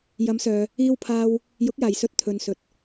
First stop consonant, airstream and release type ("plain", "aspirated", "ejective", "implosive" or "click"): aspirated